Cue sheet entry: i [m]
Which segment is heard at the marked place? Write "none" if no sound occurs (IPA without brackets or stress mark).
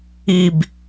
b